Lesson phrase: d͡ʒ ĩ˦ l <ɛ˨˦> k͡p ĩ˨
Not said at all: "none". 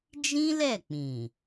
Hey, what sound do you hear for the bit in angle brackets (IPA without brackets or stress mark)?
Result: ɛ˦˨